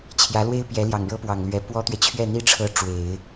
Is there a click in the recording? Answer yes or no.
no